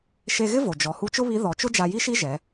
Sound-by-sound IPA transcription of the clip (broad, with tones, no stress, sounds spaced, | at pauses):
ʃ e˧ ɣ ɪ˥ v o˩ d͡ʒ ɔ˩˧ h u˧˥ t͡ʃ ʊ˥ β i˧˥ ð ɔ˩˧ t͡ʃ ʊ˥ d͡ʒ a˧ j i˥ ʃ i˥ ʒ ɛ˩˧